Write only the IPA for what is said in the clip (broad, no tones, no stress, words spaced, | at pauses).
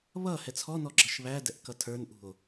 βʌ hɛt͡sʰɔnɔ ɡ͡ǁʌʃβædɛʔ kʌtʰə˞nʔṳo̯